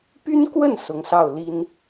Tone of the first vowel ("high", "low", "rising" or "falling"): high